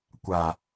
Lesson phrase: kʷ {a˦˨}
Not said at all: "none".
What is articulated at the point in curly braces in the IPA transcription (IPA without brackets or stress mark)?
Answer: a˨